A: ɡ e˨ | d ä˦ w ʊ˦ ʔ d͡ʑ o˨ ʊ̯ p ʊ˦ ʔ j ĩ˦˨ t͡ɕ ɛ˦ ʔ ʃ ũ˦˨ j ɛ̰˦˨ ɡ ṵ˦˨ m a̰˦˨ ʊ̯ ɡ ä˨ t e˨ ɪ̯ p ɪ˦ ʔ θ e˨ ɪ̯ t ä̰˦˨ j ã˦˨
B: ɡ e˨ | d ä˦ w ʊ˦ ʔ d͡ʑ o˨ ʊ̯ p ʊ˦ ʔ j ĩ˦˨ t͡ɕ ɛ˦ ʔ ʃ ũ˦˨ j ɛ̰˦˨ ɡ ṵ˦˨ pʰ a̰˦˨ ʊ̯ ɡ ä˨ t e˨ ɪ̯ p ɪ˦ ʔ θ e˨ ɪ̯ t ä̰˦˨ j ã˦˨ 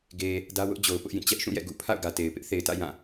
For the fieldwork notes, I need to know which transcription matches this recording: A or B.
B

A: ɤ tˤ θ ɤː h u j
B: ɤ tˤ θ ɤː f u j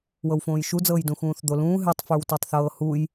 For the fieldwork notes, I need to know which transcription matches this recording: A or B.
A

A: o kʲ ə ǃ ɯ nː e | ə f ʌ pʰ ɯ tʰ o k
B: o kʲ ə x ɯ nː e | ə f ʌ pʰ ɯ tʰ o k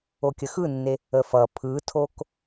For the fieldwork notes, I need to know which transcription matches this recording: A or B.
B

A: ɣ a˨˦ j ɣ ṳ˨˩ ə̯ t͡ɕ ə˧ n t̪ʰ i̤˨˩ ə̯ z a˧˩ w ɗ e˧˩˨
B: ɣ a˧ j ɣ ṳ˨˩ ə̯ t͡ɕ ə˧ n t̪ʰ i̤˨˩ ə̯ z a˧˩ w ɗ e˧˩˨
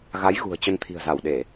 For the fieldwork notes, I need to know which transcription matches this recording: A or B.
A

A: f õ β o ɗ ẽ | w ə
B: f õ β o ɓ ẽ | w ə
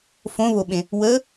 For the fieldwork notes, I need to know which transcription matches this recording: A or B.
B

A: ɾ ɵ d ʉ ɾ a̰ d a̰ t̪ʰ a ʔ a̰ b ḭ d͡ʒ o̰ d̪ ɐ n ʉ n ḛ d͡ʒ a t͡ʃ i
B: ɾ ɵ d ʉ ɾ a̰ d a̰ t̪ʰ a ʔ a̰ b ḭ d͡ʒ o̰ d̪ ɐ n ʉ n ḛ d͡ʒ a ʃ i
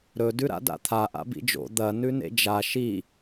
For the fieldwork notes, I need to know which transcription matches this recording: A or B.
B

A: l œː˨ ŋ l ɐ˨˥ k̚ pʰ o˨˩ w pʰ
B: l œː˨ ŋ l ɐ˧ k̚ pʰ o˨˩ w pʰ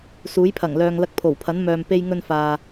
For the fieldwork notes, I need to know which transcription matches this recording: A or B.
B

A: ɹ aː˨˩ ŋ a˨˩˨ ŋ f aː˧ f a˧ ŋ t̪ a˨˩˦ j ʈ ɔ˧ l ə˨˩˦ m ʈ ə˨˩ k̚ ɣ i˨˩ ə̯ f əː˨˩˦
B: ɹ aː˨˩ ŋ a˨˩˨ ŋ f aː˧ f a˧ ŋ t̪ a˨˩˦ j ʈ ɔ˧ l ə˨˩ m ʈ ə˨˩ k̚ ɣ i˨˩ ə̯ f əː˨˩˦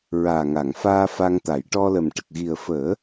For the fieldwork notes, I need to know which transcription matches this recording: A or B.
B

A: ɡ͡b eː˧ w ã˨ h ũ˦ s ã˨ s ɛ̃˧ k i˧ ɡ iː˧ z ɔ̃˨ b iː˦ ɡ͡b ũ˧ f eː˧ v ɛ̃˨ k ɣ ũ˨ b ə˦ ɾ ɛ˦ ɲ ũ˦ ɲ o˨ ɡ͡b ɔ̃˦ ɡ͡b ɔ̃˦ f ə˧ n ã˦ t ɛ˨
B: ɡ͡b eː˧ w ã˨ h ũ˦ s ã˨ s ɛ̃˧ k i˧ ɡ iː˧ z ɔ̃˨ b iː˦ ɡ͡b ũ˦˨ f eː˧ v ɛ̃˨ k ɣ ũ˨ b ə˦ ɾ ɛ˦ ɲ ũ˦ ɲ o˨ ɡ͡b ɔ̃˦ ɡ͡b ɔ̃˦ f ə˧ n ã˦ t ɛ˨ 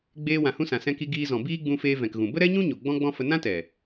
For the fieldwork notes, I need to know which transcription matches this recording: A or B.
A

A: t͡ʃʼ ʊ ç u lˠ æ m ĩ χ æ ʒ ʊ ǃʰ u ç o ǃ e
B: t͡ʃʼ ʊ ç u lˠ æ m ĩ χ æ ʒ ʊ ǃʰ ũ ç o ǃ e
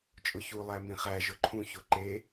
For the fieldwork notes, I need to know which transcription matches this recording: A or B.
B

